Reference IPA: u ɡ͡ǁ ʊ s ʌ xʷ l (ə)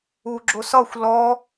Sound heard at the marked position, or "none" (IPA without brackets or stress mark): ɔ